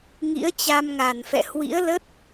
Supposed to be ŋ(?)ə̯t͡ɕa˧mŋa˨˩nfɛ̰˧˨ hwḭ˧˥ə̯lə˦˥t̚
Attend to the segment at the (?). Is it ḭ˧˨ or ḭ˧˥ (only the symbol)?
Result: ḭ˧˥